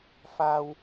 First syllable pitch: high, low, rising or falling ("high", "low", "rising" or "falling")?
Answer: high